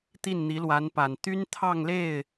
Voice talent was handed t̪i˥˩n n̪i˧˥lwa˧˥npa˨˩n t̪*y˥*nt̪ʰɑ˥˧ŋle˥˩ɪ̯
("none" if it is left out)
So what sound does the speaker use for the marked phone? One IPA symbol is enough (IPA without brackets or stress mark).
y˥